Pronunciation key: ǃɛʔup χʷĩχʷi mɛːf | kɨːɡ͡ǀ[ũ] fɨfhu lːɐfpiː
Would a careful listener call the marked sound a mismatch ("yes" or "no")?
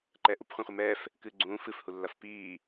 yes